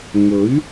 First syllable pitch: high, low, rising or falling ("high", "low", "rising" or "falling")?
rising